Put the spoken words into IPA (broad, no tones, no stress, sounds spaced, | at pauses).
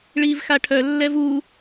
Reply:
ɭ iː v x a ʈʰ œ lː ɛ v u